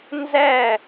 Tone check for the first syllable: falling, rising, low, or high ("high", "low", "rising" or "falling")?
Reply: falling